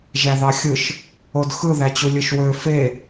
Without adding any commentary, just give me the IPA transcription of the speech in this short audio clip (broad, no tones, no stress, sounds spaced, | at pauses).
ʒ æ ð ɑ xʲ ɯ ʃ | o d x ɯ ð æ t͡ɕ u lʲ ɯ ʃ w ø f e